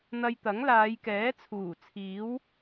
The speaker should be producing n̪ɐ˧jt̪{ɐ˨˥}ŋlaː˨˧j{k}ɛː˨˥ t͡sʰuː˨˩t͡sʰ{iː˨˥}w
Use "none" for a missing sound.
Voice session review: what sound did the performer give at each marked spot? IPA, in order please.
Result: ɐ˨˥, k, iː˨˥

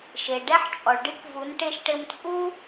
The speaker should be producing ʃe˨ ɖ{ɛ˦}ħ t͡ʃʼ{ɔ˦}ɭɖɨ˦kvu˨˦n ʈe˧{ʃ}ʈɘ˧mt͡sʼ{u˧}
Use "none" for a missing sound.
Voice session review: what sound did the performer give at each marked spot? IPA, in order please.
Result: ɛ˦, ɔ˨, ʃ, u˦

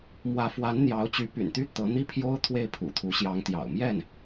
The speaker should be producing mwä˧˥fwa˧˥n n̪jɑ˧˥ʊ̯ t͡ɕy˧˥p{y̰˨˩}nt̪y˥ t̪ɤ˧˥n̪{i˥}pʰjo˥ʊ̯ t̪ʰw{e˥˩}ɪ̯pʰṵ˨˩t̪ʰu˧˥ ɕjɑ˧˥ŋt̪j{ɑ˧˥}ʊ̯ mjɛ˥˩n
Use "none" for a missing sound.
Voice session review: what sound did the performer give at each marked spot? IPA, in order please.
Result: y̰˨˩, i˥, e˥˩, ɑ̰˨˩

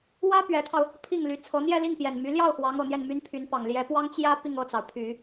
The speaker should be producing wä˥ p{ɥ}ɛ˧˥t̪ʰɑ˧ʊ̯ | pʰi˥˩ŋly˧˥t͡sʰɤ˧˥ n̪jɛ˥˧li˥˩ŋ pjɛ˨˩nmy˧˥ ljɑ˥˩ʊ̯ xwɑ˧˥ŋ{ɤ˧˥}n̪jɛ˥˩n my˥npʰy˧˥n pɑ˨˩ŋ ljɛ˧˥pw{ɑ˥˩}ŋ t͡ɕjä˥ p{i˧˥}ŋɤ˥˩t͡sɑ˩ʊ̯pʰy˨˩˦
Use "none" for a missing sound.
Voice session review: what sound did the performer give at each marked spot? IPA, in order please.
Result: ɥ, ɤ˨˩, ɑ˥, i˥˧

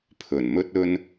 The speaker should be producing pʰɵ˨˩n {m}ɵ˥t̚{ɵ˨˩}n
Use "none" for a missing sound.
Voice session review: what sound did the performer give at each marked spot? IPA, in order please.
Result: m, ɵ˥

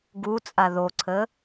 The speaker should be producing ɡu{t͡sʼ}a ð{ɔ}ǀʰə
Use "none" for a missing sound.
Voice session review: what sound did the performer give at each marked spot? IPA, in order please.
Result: t͡sʼ, o

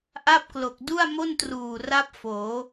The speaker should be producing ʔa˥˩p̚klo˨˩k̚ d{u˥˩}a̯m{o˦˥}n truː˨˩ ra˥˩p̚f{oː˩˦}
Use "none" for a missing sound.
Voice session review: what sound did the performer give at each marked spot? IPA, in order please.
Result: u˥˩, o˥˩, oː˩˦

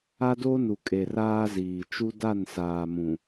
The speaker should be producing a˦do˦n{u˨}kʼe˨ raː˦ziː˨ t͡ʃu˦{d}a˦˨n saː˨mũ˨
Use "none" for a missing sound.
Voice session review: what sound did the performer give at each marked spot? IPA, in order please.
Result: u˨, d

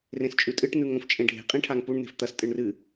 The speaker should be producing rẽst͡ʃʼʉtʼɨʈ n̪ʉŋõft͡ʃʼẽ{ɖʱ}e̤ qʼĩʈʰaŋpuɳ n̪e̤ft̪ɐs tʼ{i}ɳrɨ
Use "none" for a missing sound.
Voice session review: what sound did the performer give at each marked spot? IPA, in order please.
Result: ɖʱ, ɨ

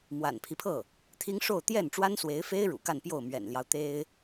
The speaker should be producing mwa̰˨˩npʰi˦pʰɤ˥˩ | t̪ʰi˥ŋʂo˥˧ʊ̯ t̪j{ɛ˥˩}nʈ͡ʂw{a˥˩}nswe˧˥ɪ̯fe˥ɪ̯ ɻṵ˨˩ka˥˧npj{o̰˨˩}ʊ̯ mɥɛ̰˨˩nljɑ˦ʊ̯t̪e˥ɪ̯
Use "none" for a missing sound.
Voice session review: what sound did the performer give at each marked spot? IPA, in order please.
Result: ɛ˥˩, a˥, o˥˩

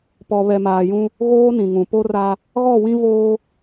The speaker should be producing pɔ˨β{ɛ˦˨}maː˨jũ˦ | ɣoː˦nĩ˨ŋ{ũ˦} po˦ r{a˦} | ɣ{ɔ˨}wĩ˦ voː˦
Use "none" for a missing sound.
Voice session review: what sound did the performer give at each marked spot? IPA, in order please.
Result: ɛ˨, ũ˨, a˦, ɔ˦˨

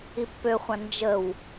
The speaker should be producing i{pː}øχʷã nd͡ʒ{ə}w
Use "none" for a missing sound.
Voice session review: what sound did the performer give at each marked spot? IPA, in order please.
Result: pː, ə

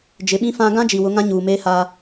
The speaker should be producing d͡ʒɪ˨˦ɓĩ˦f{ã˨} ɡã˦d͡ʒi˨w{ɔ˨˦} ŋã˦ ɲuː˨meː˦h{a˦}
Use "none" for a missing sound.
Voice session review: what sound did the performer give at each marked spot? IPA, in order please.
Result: ã˦, ʊ˨˦, a˦

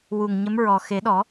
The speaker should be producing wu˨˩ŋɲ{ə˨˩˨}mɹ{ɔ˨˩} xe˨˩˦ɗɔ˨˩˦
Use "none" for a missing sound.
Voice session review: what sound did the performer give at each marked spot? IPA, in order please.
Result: ə˧˥, ɔ˨˩

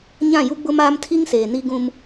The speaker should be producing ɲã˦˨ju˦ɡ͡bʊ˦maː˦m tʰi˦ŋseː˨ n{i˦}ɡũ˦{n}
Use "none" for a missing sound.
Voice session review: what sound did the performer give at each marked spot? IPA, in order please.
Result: i˦, m

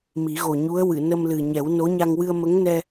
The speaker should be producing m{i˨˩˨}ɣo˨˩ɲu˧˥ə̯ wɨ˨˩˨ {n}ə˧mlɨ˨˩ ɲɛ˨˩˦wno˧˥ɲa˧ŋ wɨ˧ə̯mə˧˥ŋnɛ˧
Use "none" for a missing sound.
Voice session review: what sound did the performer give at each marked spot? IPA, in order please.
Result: i˨˩˦, n

